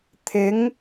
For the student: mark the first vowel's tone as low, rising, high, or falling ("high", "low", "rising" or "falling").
rising